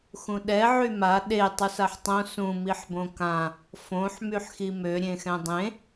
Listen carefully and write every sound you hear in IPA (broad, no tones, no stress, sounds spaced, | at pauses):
x ũ ɗ ɛ ʕ y m a ɗ e tˤ u s a ħ tˤ õ s ũ m i ħ b õ k ã | f õ ħ m y ħ x i m ø ɾʲ ẽ x ɛ̃ dˤ ẽ